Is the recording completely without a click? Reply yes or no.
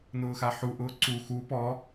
no